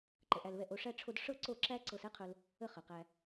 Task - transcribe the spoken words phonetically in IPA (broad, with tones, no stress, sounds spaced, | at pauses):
ǃ ə˨ ʔ æ˧ l β ɛ˧ ʔ o˧ ʂ æ˧ ʈ͡ʂʰ o˧ d ʂ ɤ˦ ǀ o˦˨ ǁ æ˦ ǀ ɤ˧ s ɛ˦ qʰ ɵ˧ l | ə˦ χ ə˨ q æ˧